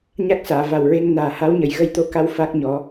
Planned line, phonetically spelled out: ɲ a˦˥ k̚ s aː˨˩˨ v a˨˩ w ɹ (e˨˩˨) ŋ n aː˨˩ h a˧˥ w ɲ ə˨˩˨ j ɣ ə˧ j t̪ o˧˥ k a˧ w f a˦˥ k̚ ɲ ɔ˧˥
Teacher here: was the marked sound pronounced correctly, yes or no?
no